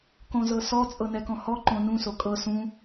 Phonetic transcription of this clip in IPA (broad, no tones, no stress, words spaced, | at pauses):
kõzɤsɔ t͡sʼɤnɛkɔ̃hɔ ǃõnũ sokʼɤ sũ